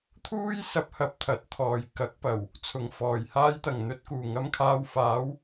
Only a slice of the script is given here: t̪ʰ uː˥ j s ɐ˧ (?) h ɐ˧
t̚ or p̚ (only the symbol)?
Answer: p̚